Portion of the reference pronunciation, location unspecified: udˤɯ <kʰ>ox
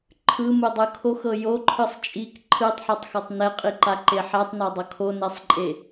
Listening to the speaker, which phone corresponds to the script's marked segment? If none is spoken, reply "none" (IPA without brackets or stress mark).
kʰ